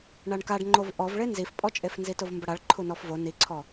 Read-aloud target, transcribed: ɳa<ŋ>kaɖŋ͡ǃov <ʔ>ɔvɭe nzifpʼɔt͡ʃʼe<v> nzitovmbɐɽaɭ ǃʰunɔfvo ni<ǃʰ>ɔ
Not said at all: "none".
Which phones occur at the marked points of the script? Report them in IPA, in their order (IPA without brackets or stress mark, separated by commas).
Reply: ɳ, ʔ, f, ǀʰ